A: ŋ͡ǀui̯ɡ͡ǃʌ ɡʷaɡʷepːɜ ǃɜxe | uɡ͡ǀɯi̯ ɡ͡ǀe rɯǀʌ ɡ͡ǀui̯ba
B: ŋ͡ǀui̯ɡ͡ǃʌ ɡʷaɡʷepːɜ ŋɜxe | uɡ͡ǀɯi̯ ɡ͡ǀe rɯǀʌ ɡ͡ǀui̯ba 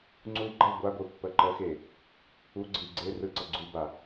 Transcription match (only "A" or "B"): A